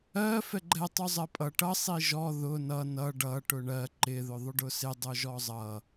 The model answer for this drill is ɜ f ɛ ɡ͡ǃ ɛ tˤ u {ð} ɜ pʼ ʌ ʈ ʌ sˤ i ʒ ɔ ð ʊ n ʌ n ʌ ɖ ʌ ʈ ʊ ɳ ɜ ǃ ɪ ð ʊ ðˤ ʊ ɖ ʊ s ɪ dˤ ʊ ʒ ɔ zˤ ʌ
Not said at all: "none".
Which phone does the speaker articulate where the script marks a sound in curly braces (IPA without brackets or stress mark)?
zˤ